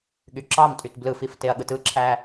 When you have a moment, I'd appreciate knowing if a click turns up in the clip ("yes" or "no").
yes